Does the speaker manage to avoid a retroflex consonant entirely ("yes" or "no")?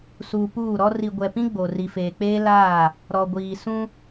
yes